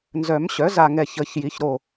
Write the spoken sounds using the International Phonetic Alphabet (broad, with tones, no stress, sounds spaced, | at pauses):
n z œ˨˩˦ m ɕ œ˩˥ z a˧˩ ŋ ɛ˧˩ ç ə˨˩˦ ç j i˩˥ ç ɾ o˧˩